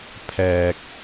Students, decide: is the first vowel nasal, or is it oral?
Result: oral